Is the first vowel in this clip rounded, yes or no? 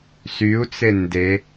yes